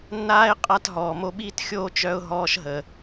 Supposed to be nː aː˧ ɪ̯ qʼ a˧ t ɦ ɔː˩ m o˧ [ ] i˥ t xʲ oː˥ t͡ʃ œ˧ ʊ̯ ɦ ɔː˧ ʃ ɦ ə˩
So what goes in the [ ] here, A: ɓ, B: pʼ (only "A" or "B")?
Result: A